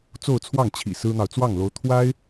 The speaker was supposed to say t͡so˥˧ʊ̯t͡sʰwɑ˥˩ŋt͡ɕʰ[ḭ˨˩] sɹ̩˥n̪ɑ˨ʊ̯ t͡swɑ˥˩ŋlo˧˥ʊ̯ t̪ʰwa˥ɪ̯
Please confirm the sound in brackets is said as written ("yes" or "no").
yes